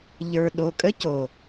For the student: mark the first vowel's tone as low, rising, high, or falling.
low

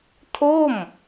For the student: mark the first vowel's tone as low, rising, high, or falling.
falling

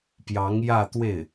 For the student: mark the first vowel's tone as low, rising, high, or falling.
rising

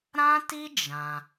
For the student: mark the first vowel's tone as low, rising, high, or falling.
high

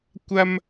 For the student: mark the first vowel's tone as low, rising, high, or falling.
high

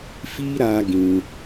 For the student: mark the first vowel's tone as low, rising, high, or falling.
high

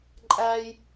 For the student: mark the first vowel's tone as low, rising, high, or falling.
high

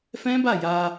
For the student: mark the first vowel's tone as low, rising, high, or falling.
high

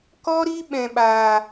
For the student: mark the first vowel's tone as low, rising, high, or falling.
high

